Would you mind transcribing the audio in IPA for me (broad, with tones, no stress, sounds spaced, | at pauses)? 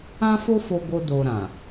ã˦ f o˦ f o˧ ɡ o˧ d o˧ ɾ ã˨